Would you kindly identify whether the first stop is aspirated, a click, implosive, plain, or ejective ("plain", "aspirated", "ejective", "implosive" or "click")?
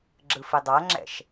click